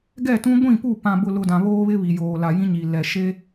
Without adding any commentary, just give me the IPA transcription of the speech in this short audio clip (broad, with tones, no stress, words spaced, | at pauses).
ɡɛ˦˨tũ˦ ɡʷĩ˦˨pu˦˨ pã˨bʊ˨lʊ˨ dã˨βoː˦βɪ˦βi˨ joː˨la˨jĩ˦ɲi˨ lɛ˨ʃe˦